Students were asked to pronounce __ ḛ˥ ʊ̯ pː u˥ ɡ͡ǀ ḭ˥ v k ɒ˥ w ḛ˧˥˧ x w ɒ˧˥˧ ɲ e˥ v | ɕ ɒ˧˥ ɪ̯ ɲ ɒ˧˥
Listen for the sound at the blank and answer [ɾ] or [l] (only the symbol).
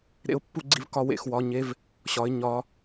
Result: ɾ